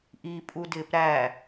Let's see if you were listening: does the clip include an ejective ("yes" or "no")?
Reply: yes